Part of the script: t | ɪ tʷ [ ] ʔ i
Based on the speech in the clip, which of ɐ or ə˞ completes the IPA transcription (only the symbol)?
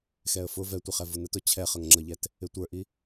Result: ə˞